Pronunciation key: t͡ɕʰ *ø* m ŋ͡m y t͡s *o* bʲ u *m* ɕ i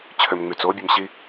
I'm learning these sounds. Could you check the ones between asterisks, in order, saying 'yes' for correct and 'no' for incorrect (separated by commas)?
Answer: yes, yes, yes